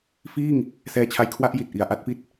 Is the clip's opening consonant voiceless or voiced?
voiceless